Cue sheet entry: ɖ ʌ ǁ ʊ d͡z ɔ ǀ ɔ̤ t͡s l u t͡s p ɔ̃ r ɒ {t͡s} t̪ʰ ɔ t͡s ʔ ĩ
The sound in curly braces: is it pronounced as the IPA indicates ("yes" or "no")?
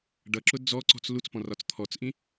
yes